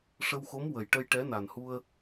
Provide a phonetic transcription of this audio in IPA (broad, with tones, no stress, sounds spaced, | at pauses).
ʂ ə˧ w x o˧˥ m w ə˨˩ j ʈ ə˧ j ʈ ɛ˧˥ n a˨˩ n h u˧ ə̯